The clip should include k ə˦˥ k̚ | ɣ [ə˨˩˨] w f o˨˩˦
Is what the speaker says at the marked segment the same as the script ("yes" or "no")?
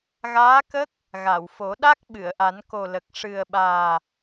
no